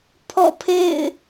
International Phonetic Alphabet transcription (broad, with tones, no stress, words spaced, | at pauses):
pʰɔ̰˦˨pʰḛ˦˨ɪ̯